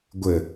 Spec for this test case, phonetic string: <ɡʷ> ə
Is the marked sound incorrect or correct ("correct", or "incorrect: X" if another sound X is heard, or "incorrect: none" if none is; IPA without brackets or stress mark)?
correct